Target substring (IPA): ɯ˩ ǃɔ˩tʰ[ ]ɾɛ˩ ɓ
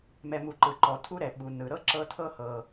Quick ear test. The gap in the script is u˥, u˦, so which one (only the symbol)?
u˥